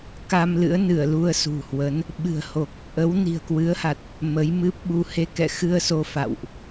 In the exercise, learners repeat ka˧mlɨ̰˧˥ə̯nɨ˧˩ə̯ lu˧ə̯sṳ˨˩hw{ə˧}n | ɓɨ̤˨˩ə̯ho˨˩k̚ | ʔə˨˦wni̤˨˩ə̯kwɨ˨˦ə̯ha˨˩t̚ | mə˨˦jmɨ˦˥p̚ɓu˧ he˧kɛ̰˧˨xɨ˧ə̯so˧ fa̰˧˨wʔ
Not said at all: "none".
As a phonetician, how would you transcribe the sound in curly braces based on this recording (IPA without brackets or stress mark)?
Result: ə˨˦